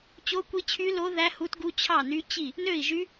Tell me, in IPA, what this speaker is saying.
t͡ɕ o˦˥ kʷ i˦˥ t͡ɕʰ y˦˥ l o˦˥ ð æ˦˥ h u˦˥ t ɡ u˦˥ t͡ɕʰ ɑ˥˨ n y˦˥ t͡ɕ i˥˨ | n ø˥˨ i̯ ʒ y˦˥

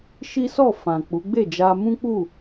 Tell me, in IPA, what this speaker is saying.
ʃ i˦ s ɔ˦˨ f ã˨ k͡p u˨˦ ɡ͡b e˦˨ d͡ʒ a˧ m ũ˦ k͡p u˦˨

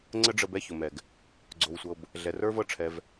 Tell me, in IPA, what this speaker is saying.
ŋ͡ǀ ə˦ ɖ͡ʐ ə˧ b ɛ˦ ç ʊ˨ m ɛ˨ ɡ | ɡ͡ǀ o˧ w sʷ ɤ˧ b | ɮ ɛ˨ r ə˞˦ v ɤ˦ ʈ͡ʂʰ ɛ˧ v

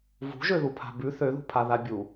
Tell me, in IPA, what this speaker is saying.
v ṳ ʒ ø ð u pʰ a̤ b ʉ θ ø ð ṳ pʰ a ð a bʲ u

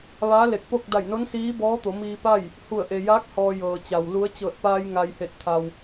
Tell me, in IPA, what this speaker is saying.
ʋ aː˧˥ l e˧˩ k̚ p o˥˨ k̚ d a˧˩ j n o˧˥ n s iː˧˥ b ɔː˧˥ t̪ o˩˧ m iː˧ p a˥˨ j | h u˧˩ ə̯ ʔ e˩ j aː˧˥ k̚ h ɔː˧ j ɤː˩ t͡ɕ a˩ w l u˧˥ ə̯ t͡ɕ ɤː˧˩ t̚ p aː˧ j ŋ a˩ j h e˧˩ t̚ t̪ʰ a˩ w

